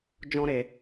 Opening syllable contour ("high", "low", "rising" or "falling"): high